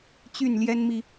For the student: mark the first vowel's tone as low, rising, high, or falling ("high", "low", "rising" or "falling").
falling